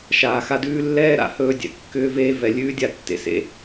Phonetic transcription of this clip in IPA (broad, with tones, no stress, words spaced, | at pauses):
ʃaː˧xa˦dʉː˦ lːɛː˦ɾa̰˨ hɵː˧dʲɛ̰˨ kːʏː˦veː˦ vɛ˧lʲʉː˦dʲa˧ tːḛ˨sḛ˧